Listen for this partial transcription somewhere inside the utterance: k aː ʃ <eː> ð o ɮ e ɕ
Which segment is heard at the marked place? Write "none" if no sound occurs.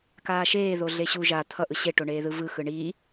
eː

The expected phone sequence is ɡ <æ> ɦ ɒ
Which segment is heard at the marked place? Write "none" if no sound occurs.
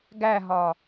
æ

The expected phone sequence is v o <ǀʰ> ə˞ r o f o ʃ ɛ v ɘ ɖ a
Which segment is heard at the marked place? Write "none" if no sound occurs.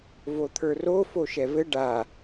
t̪ʰ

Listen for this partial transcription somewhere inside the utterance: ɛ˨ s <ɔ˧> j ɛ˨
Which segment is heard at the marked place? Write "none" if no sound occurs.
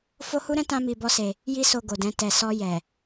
ɔ˧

